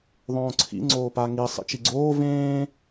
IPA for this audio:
ðˤõːǀʰḭ ŋ͡ǀoːpa ŋi sˤḭt͡ʃiɡ͡ǀoː vẽː

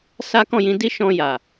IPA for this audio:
sa˦kɔ̃˦˨jĩ˨˦ di˦ʃɔ̃˧ ja˨

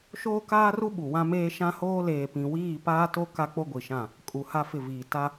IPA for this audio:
ʃoː˦kaː˦ru˦ ɓu˨wã˦meː˦ ʃã˦hoː˦ leː˨pĩ˨wiː˦˨ paː˦to˦ ka˦k͡po˦ɡʷi˨ʃã˦˨ | kʼu˨ ha˦fɪ˦˨viː˨ ta˦

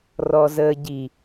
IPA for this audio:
rɔzəːɟi

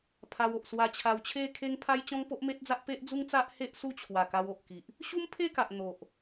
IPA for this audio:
pʰa˧wo˨ʔ swa˧t͡ɕʰa˧w t͡ɕʰe˥˧kʰe˦ŋpʰa˦j t͡ɕɔ̃˦ŋpo˦ʔme˦t̚d͡za˦ʔ pe˦ʔd͡zu˦ŋt͡sa˦ʔ he˦ʔ su˦t͡ɕʰwa˨˩ka˧w o˨ʔki˨ʔ | ɕu˦mpʰe˥˧ka˨ʔ n̪o˨ʔ

